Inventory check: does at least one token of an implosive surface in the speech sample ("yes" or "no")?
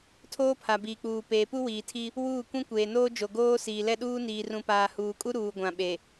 yes